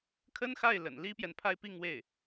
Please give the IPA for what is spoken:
kʰ ə˥ n x a˥˩ ɪ̯ l ə̰˨˩ n l i˥ p j ɛ˨ n pʰ a˥˧ ɪ̯ p i˥˧ ŋ w e˥˩ ɪ̯

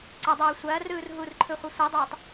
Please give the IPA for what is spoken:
ǀ ɐ dˤ uː sʷ ɐː r ɯː r ɦ u r ǃʰ ɯ χʷ ɐ sʷ ɯ dˤ uː tˤ

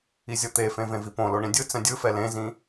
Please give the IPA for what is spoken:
i zʲ ɤ t̪ e f ẽ v ẽ v i p õ l o ɳ ĩ dʲ ɯ t͡s ɛ̃ dʲ ɯ f ɛ l ẽ z ĩ

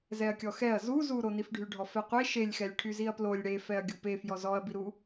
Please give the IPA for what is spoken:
z ɛ ɐ̯ kʲ ɔ x ɛ ɐ̯ z u z u ɾ o n i f ɖʱ y ɖʱ ɔ f ɛ qʷ e ʃ e lʲ x ɛ lʲ ʈʰ y z i ɐ̯ p l o lʲ ɽ e f ɛ ɐ̯ ɡʲ u p e f j ɔ z ɔ ɐ̯ b i ɾ u

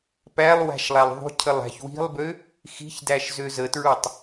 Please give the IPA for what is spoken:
p æ lˠ w æ̤ ʃ lˠ æ lˠ ðˤ ṳ cʰ ə lˠ æ̤ ç w i̤ lˠ b ø | x i̤ ç d æ ʃ z ø z ə t ɹ u tˤ

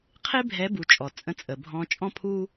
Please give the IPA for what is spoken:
qʰ e˥ bʱ ɛ˧˥ b u˩˧ t͡ʃʼ ɔ˩ t͡sʼ ə̃˧˥ t͡sʼ ə˩ bʱ ɔ̃˧ t͡ʃʼ ɔ̃˥ pʰ u˥

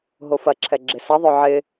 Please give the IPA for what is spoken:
ɦ o f ɐ ǁʰ ɛ ɡ͡ǁ ɪ s ɐ ðˤ œ ʕ ɪ

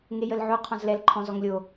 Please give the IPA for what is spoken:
ŋ e j ə l ʕ o qʰ ɔ̃ z l ɛ l ǃʰ ɔ̃ z ɔ ŋ lʲ o

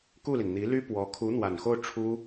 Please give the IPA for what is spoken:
k u˥˩ l i˩ n n̪ i˧˥ l y˥ p w ɔ˧˥ kʰ u˧˥ n̪ w a˨˩ n x o˥˩ ʊ̯ ʈ͡ʂʰ u˥

